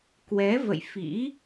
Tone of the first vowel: rising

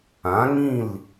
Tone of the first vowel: rising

